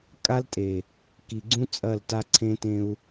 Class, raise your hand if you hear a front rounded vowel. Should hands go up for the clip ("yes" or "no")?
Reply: no